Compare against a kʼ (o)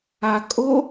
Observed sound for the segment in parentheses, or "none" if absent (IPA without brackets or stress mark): o